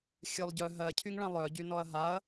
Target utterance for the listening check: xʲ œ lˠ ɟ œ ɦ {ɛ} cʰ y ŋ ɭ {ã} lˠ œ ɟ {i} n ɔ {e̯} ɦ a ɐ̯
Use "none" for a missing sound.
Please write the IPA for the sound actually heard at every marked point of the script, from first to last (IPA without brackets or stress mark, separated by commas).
ɜ, ã, y, ɐ̯